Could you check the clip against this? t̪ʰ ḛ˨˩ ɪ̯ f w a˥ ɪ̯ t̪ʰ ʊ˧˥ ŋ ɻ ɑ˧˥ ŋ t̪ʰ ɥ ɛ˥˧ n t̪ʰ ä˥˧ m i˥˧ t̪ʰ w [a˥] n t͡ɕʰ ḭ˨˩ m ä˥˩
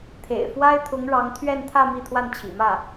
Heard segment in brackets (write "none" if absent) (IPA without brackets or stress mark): a˥˩